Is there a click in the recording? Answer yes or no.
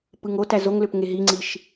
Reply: yes